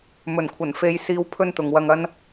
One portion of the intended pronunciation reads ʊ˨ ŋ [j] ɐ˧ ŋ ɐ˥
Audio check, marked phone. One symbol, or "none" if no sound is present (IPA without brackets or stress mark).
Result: w